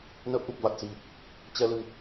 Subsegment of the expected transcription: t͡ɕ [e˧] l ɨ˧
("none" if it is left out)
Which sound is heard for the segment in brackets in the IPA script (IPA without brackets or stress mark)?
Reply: ɛ˧